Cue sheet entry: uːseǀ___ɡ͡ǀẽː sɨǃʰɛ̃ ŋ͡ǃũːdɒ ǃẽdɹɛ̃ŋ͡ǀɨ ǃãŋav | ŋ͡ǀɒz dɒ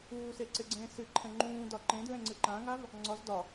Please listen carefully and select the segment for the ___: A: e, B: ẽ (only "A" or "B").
A